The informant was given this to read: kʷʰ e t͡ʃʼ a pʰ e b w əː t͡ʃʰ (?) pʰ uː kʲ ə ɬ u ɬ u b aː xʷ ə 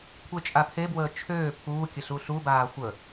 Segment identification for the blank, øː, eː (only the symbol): øː